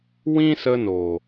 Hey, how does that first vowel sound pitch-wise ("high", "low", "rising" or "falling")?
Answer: high